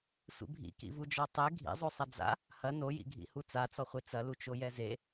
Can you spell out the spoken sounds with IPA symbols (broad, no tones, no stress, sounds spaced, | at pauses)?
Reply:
sʷ ḭ bʱ ḭ k ḭ v u d͡ʒ ɔ tˤ e ɡʱ ḭ zˤ o sˤ ɐ d͡z a̰ | h ɐ n o j ḭ ɡʱ ḭ h u t͡s a t͡s ɔ χʷ e t͡s ɐ l u t͡ʃ o j ɛ z e